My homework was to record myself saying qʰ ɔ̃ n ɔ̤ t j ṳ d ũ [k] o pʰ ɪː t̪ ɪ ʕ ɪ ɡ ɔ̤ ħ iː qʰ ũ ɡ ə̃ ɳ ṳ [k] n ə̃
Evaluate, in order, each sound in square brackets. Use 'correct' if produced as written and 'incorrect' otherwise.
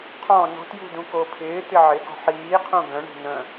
correct, incorrect: none

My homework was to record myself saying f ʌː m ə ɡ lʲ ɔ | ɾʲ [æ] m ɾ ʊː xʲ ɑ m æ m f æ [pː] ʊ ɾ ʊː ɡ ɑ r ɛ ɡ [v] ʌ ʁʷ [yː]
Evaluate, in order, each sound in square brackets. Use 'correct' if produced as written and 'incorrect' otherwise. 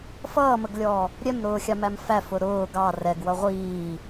incorrect: ɛ, incorrect: f, incorrect: w, incorrect: iː

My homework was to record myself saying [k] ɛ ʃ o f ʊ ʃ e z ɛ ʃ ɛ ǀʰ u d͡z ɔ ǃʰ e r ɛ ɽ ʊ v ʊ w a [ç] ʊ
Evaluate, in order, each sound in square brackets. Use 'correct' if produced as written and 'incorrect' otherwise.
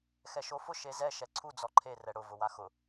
incorrect: x, incorrect: x

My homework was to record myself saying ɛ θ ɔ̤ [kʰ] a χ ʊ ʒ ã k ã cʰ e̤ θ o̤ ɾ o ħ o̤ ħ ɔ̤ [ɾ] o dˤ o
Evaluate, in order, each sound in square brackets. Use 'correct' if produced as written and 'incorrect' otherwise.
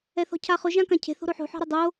incorrect: cʰ, correct

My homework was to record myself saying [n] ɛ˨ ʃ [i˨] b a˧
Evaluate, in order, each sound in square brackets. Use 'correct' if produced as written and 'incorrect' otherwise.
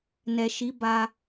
correct, incorrect: i˨˦

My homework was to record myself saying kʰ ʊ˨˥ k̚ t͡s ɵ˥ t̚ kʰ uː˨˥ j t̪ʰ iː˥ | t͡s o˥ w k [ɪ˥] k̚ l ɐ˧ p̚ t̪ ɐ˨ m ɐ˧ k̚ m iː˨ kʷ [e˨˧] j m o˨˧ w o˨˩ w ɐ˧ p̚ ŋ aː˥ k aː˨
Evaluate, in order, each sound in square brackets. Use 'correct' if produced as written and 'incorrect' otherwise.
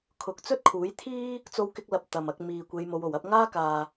correct, correct

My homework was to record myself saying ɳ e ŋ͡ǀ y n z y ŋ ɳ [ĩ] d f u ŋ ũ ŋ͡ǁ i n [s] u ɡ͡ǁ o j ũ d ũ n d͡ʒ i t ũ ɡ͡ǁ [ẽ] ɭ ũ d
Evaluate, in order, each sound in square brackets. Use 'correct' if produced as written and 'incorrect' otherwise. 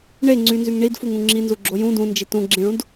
incorrect: i, incorrect: z, incorrect: ĩ

